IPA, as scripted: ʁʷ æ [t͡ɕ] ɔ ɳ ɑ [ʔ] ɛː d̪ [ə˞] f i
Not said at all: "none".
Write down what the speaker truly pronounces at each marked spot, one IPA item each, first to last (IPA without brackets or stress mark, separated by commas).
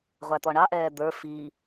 t̪, ʔ, ə˞